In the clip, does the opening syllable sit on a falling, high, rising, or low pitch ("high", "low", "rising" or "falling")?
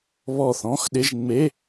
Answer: falling